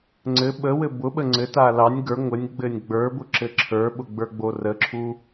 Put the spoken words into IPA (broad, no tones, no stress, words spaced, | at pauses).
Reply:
ŋ͡ǀɘ ɓəwɘ bʊɓə ŋ͡ǀɘta lɑnʲ ɡə˞ ŋʷɘnʲ ɡ͡bɘnʲɡ͡bə˞bʊ ǁɘǁʰə˞ɓʊ ɡ͡bə˞ɡ͡borəǁʰu